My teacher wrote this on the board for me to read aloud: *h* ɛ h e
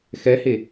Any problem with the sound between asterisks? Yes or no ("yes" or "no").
yes